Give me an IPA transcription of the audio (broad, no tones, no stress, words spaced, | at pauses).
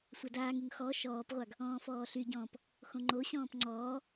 sʷadaːŋyŋ xɔ ʃɔːpʁʷaɡ | ɔ̃ːfɔːɬyɟɔ̃ːp | xõŋ͡ǃoɕɔ̃ːp ŋ͡ǀɔː